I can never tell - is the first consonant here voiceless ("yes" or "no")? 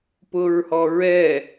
yes